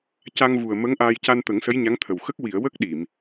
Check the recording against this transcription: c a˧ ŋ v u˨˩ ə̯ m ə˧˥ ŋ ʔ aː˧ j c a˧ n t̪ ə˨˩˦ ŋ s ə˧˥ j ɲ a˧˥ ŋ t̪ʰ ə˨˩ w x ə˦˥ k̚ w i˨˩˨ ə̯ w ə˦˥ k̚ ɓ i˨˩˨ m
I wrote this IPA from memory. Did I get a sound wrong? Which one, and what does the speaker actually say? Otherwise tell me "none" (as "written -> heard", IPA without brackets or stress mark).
ɓ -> ɗ